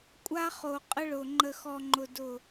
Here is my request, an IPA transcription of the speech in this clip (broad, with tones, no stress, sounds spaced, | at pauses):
kʷʼ a˦ χ o˨ qʼ ə˦ ɭ ʊ˨ ŋ͡ǃ ə˨ x ɔ˨ ŋ͡ǃ ʊ˨ d ʊ˦˨